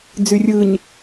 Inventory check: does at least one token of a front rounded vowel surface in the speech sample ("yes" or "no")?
yes